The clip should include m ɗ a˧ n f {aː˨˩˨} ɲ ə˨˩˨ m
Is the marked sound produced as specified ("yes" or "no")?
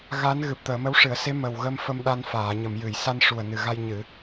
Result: yes